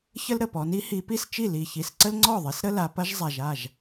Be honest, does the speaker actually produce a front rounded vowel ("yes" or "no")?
no